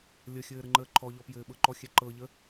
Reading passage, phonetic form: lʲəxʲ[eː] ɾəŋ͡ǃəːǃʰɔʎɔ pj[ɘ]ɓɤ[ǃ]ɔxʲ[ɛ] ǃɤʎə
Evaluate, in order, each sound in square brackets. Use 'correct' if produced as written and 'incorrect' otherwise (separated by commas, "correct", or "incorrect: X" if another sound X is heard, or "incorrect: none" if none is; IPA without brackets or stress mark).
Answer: incorrect: ɘː, incorrect: ɘː, correct, correct